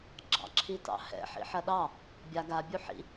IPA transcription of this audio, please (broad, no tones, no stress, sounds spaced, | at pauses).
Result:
ɡ͡ǁ ɑ̰ ǁʰ i t ɑ̰ h ɛ̰ ħ ḭ ħ ɐ ɗ ɑ | bʲ a ɡ a bʲ u ħ ḭ